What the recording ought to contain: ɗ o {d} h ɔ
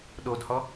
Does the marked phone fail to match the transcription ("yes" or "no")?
no